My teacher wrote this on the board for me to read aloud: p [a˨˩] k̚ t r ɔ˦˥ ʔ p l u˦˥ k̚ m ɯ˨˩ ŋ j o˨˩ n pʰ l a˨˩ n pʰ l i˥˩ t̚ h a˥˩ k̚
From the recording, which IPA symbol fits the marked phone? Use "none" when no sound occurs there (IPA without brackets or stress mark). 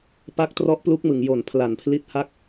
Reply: a˦˥